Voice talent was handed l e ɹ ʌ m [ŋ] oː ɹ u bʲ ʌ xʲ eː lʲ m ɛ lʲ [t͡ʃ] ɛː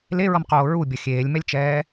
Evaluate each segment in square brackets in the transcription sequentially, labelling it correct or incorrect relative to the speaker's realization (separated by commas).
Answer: incorrect, correct